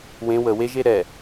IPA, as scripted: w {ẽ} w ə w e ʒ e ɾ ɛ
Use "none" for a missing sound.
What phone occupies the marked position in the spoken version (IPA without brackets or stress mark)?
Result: ẽ